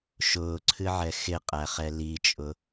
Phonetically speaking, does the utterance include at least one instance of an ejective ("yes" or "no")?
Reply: yes